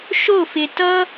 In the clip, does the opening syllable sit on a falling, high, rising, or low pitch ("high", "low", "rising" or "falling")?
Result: falling